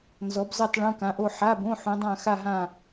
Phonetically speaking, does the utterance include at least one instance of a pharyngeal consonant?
yes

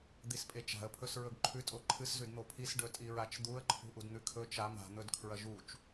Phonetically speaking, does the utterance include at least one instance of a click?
yes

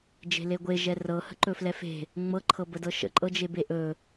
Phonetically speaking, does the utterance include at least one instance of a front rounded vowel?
no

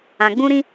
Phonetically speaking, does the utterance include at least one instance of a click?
no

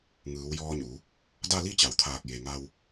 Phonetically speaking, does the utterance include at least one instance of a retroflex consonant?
no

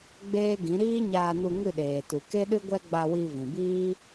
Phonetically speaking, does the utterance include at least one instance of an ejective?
no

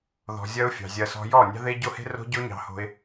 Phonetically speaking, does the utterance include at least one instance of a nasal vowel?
no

